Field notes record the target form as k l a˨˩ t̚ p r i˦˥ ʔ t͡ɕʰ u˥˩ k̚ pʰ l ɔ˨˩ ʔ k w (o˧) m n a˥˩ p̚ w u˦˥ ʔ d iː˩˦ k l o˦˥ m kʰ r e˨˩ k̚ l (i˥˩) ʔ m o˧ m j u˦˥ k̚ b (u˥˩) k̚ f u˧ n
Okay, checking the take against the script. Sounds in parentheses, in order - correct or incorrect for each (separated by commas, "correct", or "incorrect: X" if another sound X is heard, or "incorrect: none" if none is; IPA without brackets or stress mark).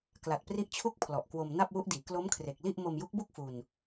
correct, correct, correct